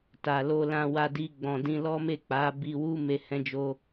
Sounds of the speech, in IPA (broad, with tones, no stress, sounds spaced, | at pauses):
t a˨ l o˧ l ã˧ w a˧ d i˧ ɡ͡b ɔ̃˨ d ĩ˧ l ɔ˦ m e˦˨ k͡p a˨˦ b i˧ w u˦ m e˧ h ɛ̃˧ d͡ʒ o˧